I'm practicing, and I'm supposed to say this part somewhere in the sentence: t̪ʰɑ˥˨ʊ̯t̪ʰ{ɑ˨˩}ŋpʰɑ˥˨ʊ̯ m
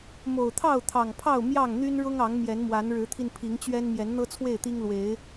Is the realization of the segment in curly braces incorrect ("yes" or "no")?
no